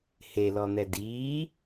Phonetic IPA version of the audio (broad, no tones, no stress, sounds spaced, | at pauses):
h e l ɔ n̪ ɛ d iː